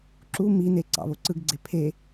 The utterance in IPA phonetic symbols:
ǁ u m i n e ǀ ɑ̰ β o ǀ ɯ ɡ ɡ͡ǀ e pʰ e

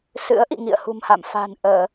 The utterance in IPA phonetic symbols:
s ɨ̰˧˥ ə̯ ʔ ḭ˧˨ ŋ ḭ˧˨ ə̯ h ṳ˨˩ m h a̰˧˨ m f a̤˨˩ n ʔ əː˧˩˨

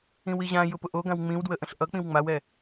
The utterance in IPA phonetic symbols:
ĩ w i ʑ ã j ʊ p ʊ ʔ o ɡ ã w ŋ͡m ĩ w d w ə ʔ ə̃ ɬ ʔ ʌ k͡p ĩ w ŋ͡m a w ɛ

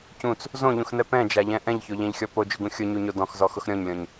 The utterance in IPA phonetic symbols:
c ũ t͡s | z õ ʎ ũ x n ɛ p ɛ̃ d͡ʒ a ʎ ɛ̃ ʔ ɛ̃ ʎ ç o ʎ ɛ̃ ʎ xʲ ɔ p o d͡ʒ ʊ ɡ ũ xʲ ʊ ɲ u ɲ o d ɔ̃ x z ɔ x ʊ x ɾʲ ɔ̃ ɲ lʲ ɔ̃ ɲ

